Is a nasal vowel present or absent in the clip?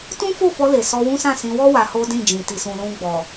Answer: present